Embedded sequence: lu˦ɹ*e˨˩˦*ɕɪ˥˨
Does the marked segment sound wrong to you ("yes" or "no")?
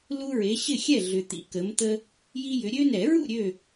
yes